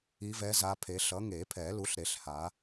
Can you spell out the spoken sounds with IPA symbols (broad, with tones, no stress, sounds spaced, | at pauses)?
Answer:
i˨˦ v ɛ˨˦ z a˨˦ pʰ e˨˦ ɬ ʌ˨˦ ŋ e˨˩˦ pʰ ɛ˨˩˦ l u˨˦ ɬ ɾ e˨˩˦ ɬ h a˨˦